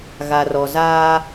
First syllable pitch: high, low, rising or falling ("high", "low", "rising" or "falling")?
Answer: low